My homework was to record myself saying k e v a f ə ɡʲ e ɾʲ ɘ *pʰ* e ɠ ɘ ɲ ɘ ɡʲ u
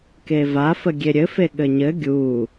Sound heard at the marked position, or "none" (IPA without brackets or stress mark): f